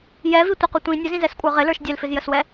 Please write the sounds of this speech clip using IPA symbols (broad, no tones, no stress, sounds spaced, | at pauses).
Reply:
j ɛ v i tʷ ə q ʊ tʷ ĩ nʲ ʊ z ĩ z ɛ s kʷʼ ə˞ ʁ ɪ l ə˞ ʃ dʲ ɛ l f ɪ z j ə s w ɛ